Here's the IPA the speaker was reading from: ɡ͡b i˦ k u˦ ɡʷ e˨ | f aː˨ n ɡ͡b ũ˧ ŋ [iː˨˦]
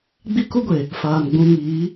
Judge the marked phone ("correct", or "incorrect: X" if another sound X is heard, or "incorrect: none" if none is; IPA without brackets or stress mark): correct